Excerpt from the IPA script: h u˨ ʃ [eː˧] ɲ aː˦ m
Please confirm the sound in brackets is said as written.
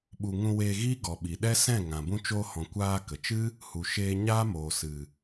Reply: yes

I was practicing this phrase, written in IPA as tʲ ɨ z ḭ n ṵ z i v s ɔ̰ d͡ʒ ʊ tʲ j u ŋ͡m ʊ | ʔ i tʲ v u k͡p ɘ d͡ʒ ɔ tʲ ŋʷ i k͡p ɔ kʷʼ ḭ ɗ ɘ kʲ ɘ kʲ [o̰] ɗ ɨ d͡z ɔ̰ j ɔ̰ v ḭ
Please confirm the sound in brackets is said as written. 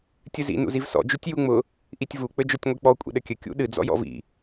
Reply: no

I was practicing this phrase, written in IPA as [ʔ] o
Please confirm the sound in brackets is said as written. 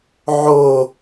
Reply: no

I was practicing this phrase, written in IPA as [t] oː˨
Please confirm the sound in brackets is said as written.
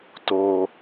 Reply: yes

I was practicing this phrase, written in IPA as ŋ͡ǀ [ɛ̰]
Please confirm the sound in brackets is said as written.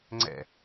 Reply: yes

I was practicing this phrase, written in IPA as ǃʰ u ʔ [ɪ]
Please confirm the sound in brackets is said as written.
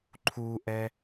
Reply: no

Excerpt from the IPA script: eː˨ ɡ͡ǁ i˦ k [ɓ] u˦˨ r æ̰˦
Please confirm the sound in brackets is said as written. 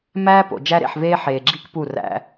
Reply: no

